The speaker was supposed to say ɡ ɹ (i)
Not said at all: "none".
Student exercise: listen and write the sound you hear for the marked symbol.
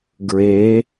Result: e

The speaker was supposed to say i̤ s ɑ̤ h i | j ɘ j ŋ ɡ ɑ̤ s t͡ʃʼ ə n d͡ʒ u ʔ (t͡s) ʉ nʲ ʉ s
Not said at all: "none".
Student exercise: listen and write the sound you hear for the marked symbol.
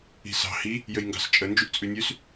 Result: t͡sʼ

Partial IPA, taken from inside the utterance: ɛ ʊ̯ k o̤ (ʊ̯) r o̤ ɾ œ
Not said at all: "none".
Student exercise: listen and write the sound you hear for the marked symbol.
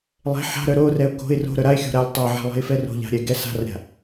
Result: ɪ̯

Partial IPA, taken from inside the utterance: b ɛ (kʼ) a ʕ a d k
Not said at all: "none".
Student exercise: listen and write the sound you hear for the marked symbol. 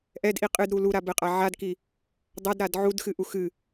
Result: qʼ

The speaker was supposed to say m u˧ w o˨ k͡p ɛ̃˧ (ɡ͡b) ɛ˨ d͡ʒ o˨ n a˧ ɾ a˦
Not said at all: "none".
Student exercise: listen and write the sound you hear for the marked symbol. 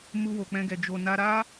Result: ɡ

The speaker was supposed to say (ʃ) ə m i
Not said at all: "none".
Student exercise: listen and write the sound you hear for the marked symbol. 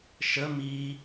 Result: ʃ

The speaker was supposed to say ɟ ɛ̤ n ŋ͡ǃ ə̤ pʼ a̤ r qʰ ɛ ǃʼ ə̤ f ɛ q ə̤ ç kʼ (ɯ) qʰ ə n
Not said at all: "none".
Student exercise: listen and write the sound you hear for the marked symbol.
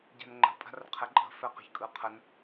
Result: ɯ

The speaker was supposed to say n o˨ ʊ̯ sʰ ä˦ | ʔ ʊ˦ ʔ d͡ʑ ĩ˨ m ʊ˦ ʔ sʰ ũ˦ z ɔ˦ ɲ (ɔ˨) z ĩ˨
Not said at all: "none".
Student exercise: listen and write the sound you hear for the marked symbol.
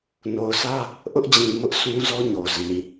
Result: o˨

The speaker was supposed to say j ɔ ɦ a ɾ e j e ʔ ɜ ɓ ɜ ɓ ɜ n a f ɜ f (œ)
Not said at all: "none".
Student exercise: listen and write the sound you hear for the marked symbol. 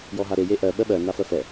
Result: ɛ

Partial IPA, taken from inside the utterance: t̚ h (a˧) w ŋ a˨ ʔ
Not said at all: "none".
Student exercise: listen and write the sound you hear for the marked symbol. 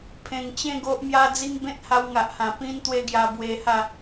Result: a˧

